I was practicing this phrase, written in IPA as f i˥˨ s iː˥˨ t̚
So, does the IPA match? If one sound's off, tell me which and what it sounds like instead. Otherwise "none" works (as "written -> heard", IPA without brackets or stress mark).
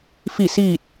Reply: none